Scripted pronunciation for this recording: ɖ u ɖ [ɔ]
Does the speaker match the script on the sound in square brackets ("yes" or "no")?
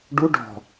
no